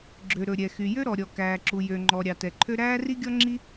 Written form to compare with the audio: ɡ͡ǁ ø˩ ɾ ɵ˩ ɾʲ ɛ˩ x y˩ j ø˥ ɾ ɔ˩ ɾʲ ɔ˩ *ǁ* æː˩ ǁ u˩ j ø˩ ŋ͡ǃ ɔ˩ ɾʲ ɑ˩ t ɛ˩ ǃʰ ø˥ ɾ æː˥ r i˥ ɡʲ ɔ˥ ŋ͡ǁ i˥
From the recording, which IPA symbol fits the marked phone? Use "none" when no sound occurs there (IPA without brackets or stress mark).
k